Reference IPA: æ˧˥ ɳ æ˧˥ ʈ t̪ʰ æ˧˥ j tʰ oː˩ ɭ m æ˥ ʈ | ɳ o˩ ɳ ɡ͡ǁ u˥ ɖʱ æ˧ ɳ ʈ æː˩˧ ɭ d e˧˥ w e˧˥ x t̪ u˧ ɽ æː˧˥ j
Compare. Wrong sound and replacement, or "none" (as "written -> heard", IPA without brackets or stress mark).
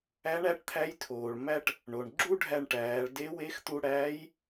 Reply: none